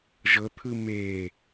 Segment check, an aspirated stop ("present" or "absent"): present